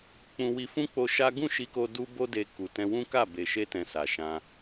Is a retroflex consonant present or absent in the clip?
absent